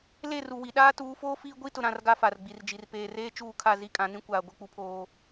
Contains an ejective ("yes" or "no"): yes